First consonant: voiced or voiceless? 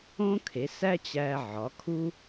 voiceless